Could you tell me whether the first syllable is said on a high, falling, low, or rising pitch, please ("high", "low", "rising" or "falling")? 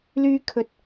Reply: high